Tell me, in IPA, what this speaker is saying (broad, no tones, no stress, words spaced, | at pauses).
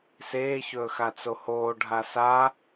seːçɵːxa t͡sohoːɖʱa sa